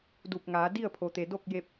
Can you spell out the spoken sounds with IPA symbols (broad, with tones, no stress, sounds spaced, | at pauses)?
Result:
d u˧˩ p̚ ŋ aː˩˧ d i˥˨ ə̯ pʰ o˩ t̪ e˩ d o˥˨ k̚ j e˧ p̚